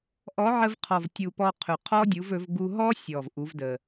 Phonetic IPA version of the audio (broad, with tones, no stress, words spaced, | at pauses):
ʔɔ˨˥ʕə˧vqʰɔ˨˩vtʲu˨˩ pɔ˧qʰɵ˨˩ qʰɔ˦˥dʲu˨˥vɵ˨˥v ɡu˧ɦɔ˦˥sʲɔ˨˩v ʔu˨˥vdə˨˩